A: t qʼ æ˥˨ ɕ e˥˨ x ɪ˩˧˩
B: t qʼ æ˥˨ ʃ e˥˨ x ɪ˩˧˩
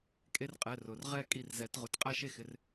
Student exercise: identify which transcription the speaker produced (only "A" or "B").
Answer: B